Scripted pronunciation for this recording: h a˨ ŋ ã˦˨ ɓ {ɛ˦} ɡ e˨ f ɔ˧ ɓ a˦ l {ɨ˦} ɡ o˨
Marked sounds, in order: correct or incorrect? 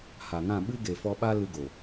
incorrect: ɨ˦, incorrect: ɨ˧

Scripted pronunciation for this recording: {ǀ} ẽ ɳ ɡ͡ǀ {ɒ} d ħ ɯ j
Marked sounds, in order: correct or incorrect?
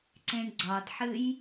correct, correct

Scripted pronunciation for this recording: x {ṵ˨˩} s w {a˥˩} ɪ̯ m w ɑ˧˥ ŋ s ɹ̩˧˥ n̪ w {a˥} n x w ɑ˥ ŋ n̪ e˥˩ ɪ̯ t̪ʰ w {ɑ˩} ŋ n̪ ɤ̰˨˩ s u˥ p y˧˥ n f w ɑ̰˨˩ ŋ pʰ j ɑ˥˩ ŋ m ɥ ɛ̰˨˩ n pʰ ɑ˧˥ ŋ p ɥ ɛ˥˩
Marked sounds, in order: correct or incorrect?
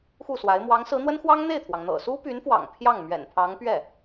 incorrect: u˥˩, incorrect: a˧˥, incorrect: ə˥, correct

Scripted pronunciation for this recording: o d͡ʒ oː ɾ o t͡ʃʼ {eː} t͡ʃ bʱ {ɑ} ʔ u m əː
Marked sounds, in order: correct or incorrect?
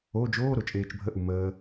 correct, incorrect: ə

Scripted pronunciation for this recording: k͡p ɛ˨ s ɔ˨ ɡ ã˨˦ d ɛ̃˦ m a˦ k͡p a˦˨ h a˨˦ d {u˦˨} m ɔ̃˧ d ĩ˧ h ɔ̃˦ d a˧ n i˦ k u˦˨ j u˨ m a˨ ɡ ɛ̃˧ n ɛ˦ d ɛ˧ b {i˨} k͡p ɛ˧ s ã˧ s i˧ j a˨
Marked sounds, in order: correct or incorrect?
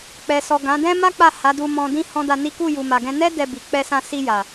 incorrect: u˧, correct

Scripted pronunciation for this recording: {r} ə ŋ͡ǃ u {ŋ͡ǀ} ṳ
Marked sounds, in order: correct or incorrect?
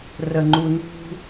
correct, incorrect: n

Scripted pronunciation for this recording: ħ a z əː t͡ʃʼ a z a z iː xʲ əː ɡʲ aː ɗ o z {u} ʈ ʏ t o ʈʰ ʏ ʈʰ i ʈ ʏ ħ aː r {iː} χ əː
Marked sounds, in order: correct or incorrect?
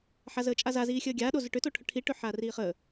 incorrect: ʏ, correct

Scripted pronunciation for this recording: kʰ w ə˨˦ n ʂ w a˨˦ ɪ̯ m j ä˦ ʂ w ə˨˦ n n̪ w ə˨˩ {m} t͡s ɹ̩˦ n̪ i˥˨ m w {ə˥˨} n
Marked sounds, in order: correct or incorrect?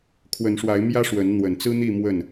incorrect: n, correct

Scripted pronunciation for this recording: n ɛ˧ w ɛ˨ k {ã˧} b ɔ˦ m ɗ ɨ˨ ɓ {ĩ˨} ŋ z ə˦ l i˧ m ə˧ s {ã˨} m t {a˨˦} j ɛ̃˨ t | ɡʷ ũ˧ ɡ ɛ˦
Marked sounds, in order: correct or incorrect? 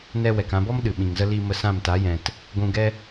correct, correct, incorrect: ã˦˨, correct

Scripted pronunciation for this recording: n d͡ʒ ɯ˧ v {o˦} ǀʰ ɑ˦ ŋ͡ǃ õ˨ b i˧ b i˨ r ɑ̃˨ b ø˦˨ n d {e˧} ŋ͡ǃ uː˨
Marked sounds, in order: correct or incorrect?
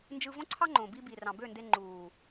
incorrect: õ˦, correct

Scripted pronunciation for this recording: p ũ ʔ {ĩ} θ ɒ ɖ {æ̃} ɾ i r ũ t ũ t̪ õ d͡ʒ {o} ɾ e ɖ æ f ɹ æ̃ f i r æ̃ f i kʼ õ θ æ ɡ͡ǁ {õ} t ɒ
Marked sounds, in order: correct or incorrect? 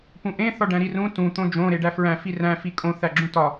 incorrect: ẽ, correct, incorrect: õ, incorrect: ũ

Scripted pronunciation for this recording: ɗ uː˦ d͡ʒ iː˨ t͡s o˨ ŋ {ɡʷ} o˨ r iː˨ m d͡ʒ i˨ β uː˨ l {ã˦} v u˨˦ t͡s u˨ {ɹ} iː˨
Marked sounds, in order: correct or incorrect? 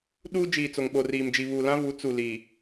incorrect: ɓ, correct, incorrect: l

